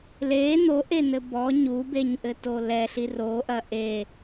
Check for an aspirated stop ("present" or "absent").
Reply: absent